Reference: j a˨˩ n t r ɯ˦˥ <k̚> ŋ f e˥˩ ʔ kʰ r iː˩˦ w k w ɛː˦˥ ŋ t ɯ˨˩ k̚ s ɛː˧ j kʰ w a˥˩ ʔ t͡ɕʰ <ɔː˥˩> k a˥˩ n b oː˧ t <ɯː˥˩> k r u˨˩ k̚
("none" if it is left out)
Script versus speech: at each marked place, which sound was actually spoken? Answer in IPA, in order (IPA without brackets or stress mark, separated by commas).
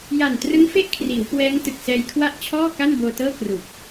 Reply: none, ɔː˥˩, ɤː˥˩